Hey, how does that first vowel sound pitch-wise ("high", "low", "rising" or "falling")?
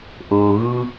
low